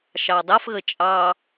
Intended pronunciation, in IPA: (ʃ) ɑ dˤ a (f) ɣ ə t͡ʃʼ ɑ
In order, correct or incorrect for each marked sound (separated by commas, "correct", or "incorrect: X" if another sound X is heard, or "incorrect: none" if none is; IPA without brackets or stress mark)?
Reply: correct, correct